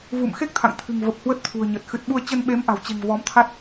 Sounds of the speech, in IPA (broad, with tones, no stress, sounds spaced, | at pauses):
v ṵ˧˨ m x e˦˥ k̚ t̪ʰ a̰˧˨ ŋ t̪ʰ ɨ̤˨˩ ŋ v ə˨˩ p̚ h w ə˦˥ t̚ t̪ʰ ṳ˨˩ ə̯ ɲ ə˨˩ t̚ x ɨ˨˩ t̚ ɓ u˧ ə̯ t͡ɕ ə˧ n ɓ e˨˦ m ʔ a̤˨˩ w t͡ɕ e̤˨˩ ŋ v ɔ˨˦ m t̪ʰ a˦˥ t̚